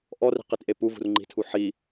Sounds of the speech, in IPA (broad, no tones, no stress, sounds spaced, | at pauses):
ʔ ɔ r i̤ q i t ʔ e p u v ṳ r ŋ͡ǃ i̤ tʰ u ħ i